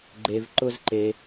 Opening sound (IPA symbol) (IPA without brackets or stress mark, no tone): ɡ͡ǃ